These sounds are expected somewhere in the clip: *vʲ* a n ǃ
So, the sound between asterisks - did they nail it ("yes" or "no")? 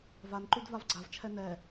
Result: no